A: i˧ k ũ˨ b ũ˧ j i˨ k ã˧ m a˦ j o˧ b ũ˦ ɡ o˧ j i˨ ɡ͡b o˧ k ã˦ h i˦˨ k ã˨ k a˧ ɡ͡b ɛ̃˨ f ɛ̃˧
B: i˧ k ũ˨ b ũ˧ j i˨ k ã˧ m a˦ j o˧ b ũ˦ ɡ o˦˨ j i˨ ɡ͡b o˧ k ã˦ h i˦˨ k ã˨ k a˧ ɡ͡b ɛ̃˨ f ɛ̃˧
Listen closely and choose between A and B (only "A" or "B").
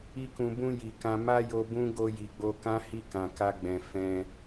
A